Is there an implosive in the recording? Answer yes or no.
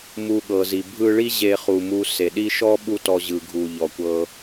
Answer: yes